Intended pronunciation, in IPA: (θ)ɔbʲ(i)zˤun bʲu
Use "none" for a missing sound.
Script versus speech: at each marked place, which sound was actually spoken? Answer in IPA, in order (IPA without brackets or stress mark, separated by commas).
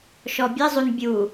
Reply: ʃ, ɨ